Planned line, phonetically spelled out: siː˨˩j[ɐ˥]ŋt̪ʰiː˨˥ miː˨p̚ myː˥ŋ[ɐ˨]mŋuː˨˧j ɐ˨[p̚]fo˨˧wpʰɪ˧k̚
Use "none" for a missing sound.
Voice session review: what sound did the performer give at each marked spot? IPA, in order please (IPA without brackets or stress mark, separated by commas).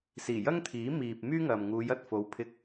ɐ˥, ɐ˨, t̚